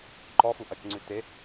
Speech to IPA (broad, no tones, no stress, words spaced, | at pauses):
ǃɔfu ʔɐt͡ʃŋ͡ǀʉ te